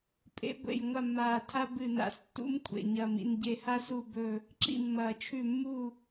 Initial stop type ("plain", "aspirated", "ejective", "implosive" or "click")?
ejective